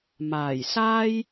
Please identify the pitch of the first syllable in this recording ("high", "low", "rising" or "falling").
low